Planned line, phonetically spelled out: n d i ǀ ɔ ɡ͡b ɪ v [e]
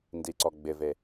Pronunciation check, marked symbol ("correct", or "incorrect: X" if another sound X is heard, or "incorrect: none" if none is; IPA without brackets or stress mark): correct